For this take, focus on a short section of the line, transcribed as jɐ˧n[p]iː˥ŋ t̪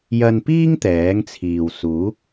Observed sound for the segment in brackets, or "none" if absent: p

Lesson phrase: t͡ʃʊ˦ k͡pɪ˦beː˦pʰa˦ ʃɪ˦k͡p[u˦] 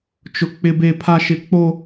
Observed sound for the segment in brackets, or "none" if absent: o˦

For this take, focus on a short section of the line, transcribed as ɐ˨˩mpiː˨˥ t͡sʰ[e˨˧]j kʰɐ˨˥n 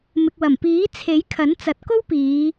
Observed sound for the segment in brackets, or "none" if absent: e˨˥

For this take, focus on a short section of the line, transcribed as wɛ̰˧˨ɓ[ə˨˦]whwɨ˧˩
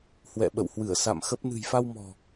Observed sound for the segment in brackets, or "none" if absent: ə̰˧˨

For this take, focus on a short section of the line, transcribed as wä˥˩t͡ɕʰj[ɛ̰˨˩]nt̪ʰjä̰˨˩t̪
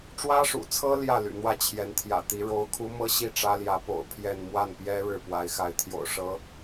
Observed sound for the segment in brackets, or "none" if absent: ɛ˧˥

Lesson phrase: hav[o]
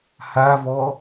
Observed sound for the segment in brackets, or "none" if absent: ɔ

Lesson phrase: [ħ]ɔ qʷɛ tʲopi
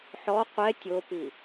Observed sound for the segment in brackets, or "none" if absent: ħ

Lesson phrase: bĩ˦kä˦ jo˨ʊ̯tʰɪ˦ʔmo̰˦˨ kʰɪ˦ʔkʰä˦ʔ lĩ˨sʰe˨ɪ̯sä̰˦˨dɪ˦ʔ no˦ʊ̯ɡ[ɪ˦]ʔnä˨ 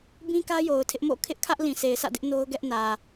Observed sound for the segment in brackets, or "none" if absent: ɛ˦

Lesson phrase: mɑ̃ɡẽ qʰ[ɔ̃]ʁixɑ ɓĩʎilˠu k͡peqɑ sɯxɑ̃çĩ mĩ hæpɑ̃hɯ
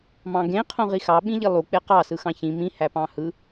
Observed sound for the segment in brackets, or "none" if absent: õ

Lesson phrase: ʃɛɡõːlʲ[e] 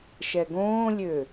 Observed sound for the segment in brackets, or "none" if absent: ø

